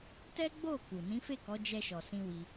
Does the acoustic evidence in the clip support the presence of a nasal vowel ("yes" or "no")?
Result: yes